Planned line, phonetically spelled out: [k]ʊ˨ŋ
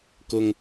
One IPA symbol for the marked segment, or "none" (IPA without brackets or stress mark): k